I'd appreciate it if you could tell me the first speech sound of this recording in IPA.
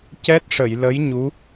c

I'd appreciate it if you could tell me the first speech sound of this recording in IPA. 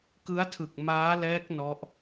k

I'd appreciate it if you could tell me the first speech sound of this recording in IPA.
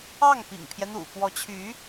ɑ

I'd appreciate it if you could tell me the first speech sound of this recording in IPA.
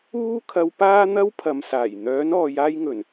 uː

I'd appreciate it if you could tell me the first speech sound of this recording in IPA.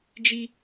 d͡ʒ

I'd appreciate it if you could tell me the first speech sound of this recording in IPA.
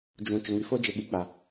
d͡ʒ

